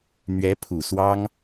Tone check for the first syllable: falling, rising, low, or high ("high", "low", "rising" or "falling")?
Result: rising